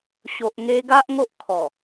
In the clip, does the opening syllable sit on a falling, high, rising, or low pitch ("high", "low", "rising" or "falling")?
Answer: low